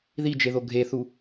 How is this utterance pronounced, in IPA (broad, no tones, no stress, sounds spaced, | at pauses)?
ð i d͡ʒ e ð o ɡʱ e θ u